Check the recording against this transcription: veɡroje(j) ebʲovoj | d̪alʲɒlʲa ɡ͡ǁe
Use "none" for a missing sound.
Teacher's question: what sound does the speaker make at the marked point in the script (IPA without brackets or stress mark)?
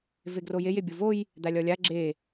j